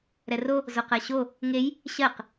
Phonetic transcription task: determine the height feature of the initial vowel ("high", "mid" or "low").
mid